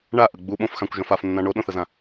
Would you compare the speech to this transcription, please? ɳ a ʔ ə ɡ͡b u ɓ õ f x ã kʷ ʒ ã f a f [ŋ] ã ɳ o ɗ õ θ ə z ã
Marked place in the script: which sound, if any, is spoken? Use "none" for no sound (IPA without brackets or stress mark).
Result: nː